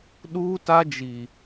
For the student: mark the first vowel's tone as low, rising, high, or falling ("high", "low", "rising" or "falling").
high